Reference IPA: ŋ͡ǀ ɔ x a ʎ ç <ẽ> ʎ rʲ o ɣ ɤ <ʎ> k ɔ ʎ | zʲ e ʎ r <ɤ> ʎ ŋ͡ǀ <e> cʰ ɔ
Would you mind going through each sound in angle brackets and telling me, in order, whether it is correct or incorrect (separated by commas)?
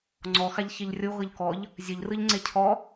incorrect, correct, incorrect, correct